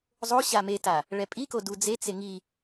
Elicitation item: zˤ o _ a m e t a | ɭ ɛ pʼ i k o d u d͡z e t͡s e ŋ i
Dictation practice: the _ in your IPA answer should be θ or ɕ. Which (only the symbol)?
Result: ɕ